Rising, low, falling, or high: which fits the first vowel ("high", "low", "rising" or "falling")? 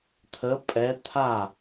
rising